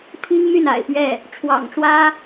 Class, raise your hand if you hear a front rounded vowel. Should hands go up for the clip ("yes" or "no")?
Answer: yes